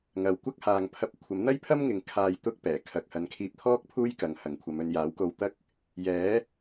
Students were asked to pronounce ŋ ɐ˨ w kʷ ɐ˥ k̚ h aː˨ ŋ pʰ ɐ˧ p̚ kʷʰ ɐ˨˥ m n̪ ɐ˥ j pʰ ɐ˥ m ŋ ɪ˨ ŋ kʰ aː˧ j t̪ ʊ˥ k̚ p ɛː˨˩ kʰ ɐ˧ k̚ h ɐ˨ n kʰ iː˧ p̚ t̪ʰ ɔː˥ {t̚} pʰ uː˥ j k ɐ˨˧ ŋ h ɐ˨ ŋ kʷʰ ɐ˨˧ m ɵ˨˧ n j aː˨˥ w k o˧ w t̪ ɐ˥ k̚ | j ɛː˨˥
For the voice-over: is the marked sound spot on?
no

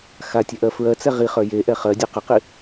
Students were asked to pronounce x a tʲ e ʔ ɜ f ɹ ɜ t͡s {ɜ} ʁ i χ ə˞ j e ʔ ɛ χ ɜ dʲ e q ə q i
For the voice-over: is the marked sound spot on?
no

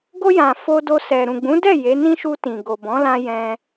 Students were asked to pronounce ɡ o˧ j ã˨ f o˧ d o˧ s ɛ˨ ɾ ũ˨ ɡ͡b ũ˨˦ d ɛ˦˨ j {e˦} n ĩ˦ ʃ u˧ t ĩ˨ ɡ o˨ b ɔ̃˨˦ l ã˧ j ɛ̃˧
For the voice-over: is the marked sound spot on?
no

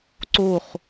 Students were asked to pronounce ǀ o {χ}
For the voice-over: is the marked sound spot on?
yes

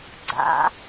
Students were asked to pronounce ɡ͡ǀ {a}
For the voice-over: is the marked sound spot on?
no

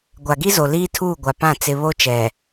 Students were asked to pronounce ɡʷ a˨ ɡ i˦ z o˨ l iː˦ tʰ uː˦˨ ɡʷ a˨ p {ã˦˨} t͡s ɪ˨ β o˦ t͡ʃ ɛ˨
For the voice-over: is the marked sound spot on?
yes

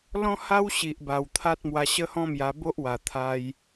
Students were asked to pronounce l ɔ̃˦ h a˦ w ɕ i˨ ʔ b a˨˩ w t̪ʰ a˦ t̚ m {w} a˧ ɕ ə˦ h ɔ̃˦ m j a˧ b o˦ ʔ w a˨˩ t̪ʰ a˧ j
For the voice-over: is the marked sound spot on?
yes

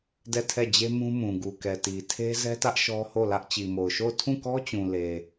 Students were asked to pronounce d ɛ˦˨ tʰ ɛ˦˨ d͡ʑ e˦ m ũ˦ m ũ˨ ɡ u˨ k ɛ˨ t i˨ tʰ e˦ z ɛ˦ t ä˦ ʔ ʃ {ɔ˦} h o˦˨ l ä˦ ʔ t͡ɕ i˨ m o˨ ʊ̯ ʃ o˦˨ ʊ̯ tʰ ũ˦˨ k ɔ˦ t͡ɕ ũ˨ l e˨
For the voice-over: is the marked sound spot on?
yes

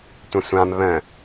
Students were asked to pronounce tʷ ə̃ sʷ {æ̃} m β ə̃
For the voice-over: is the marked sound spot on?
no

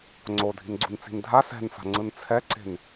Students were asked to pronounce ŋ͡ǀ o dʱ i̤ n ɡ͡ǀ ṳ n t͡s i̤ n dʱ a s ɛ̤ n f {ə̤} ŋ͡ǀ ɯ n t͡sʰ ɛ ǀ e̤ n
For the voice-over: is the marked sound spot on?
no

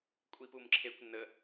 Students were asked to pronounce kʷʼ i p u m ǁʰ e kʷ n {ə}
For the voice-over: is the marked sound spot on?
yes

